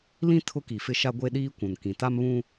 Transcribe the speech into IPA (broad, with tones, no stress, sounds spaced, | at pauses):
l ĩ˦ tʰ ʊ˦ k i˨ f ɪ˦ ʃ a˦ ɡʷ e˦ ɗ iː˦ kʷ ũ˨ n k ĩ˨ t a˦ m β ũ˦